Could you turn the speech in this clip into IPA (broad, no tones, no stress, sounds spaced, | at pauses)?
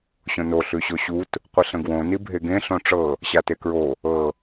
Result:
ɕ õ n o ɬ ʉ ɕ o ɕ u t | qʷ ə ɬ ə̃ ɡ w õ n i bʱ e ɡ ẽ ɬ õ ʈ͡ʂ ɤ | ɕ a t e k ɹ o | ɤ